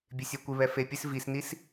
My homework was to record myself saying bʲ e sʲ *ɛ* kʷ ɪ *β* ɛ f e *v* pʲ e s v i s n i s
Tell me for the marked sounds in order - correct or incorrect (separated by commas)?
incorrect, correct, incorrect